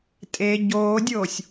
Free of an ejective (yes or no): no